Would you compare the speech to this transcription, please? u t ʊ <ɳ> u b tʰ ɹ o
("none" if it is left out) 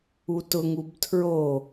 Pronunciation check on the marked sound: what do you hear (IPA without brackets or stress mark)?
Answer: ŋ